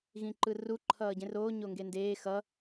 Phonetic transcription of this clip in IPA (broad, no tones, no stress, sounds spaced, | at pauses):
ɣ ĩ ǃ ɯ r u ǃʰ ʌː ɟ ẽ r oː ɲ o ŋ ɡ e n d eː x ʌ